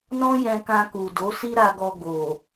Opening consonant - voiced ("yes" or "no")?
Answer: yes